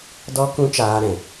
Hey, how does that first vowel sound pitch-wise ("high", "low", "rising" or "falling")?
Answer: high